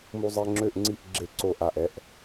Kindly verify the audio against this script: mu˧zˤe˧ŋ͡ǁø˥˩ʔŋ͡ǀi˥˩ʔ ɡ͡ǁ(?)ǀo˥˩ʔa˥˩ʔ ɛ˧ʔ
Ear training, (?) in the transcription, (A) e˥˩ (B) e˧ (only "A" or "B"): A